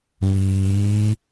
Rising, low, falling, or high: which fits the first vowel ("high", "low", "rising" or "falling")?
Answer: rising